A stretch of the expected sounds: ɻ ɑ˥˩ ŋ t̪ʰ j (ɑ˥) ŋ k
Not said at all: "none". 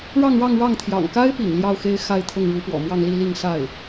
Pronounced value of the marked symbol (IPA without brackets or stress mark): ɑ̰˨˩